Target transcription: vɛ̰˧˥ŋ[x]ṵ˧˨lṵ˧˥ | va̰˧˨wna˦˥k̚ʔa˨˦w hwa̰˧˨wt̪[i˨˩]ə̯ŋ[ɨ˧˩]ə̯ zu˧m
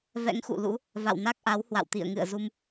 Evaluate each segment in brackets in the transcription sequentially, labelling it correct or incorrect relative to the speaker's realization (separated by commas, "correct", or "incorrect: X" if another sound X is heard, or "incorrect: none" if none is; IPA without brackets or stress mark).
correct, incorrect: ḭ˧˨, incorrect: ɨ̰˧˨